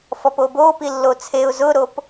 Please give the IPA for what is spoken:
f ɔ p o b o p i lː o t͡sʰ e ʊ̯ z ʊ ɾ o p

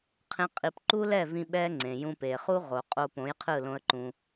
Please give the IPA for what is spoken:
qʰ ẽ˦ qʼ i˧ p ǃ u˦ l ɛ˦˨ v ĩ˦ ɓ ɛ˦ ŋ͡ǀ ẽ˨ j ũ˧ p e˨ χ u˦ ʁ o˨ qʼ o˧ p õ˨˦ j qʰ ɯ˦˨ l õ˦ ə̯ ǃ ũ˧

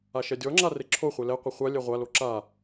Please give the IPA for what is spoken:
a ʃ ɛ dʲ ɔ ŋ͡ǁ a r e ǁʰ o χʷ e l ɛ qʷ ɪ χʷ a lʲ ɛ ʁʷ a l o ǁ a

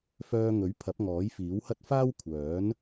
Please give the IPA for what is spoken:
f œː˧ ŋ ɵ˨˥ ɥ pʰ ɐ˨˥ p̚ ŋ ɔː˨˥ j f iː˨˥ w h ɐ˥ t̚ f aː˥ w kʷʰ œː˨˥ n

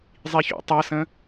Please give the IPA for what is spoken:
zˤ i ç ṵ tˤ ʌ s ə̃

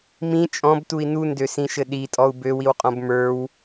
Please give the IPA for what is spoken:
m ĩ t͡ʃʼ ɔ̃ b t u i̯ n u n d ø s ĩ ʃ ɘ ɗ i tʼ ɔ u̯ b ø w i w qʼ ɔ̃ b m ə˞ w

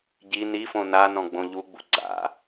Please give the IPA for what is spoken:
ɟ i n i f õ n a n ɔ̃ ɡ͡b õ ʎ u ɡ͡b ṵ ɡ͡ǀ a̰

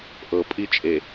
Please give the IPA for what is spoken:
ʔ ɤ pʼ i t͡ʃʼ e

